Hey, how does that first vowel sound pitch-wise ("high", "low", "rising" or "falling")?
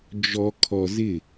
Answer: low